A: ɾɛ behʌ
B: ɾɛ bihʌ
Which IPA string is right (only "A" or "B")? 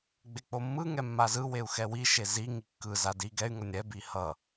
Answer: B